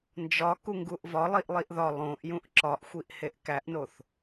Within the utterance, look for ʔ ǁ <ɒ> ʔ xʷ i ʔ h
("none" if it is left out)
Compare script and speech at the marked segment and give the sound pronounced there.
ɒ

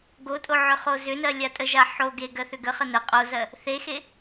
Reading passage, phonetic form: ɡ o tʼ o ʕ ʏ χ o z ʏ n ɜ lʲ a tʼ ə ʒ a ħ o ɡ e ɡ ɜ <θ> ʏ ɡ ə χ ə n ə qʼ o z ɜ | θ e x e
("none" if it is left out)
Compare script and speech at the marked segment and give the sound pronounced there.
θ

